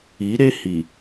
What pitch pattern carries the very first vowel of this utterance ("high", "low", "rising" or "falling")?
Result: rising